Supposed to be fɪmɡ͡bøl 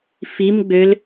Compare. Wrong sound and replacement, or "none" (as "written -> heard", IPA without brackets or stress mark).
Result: ɪ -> i